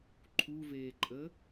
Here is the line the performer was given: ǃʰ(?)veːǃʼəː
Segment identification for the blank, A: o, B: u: B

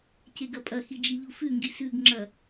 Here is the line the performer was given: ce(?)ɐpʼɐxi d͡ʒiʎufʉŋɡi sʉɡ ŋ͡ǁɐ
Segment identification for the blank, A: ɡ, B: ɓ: A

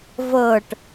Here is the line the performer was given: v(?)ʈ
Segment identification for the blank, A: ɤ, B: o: A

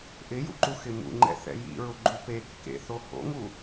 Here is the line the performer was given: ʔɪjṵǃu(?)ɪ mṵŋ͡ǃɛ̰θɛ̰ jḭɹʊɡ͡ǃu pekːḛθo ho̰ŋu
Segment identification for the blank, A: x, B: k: A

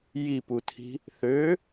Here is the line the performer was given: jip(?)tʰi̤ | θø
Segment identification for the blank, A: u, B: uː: A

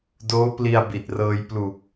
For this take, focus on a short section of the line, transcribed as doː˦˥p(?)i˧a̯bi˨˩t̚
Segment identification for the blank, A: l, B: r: A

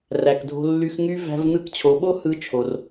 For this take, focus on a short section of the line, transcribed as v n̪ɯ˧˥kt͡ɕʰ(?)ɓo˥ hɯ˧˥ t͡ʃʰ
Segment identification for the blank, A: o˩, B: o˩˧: B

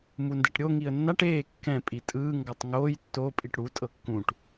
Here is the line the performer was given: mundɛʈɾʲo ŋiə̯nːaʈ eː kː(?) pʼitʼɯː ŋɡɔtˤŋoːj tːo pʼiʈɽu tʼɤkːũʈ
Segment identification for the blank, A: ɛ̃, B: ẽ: A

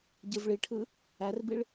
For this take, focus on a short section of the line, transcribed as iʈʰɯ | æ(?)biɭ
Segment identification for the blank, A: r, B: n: A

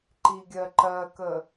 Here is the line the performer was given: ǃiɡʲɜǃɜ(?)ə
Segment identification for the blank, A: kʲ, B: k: B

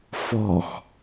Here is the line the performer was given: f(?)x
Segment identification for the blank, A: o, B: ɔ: B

